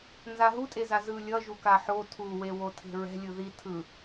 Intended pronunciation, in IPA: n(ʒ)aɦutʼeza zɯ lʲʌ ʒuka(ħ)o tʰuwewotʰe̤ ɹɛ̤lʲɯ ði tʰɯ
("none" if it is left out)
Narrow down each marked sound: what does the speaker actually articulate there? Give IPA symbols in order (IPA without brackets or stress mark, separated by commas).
z, ħ